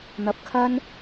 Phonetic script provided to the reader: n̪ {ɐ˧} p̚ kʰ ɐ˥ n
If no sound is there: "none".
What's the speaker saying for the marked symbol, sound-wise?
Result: ɐ˧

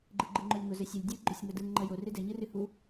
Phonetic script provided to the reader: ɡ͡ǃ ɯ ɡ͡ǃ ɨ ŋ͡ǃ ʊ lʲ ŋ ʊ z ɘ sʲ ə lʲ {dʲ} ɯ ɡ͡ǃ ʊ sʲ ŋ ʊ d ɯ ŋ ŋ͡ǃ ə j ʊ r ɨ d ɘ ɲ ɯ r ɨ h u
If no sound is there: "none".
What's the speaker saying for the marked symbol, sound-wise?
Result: dʲ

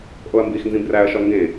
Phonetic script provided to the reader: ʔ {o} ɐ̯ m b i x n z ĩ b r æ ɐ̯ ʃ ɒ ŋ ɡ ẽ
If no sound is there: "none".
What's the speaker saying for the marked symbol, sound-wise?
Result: o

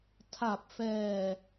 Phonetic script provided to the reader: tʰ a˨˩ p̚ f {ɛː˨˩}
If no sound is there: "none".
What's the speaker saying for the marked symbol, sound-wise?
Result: ɛː˨˩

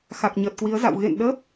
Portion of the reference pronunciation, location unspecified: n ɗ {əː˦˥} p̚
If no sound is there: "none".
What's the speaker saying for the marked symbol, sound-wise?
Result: əː˦˥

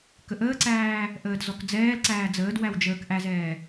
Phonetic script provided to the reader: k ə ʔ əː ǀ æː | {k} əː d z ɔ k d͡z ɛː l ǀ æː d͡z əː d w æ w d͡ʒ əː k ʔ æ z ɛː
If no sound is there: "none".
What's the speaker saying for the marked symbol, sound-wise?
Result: ʔ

